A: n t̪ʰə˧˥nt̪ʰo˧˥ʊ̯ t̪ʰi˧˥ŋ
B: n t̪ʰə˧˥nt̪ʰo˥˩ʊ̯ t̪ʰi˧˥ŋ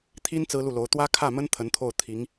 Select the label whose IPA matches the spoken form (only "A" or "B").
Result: B